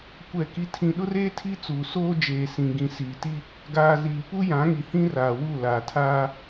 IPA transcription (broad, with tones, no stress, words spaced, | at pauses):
kʷɛ˦˨ki˦tʰĩ˦ ɗʊ˦reː˦ tʰi˦t͡suː˨ soː˦ d͡ʒeː˨sĩ˨ɡĩ˨ siː˨ti˦ | ɡaː˨ ziː˨pu˦ jã˨˦ŋi˨hĩ˦ raː˨wu˦˨ laː˨tʰaː˦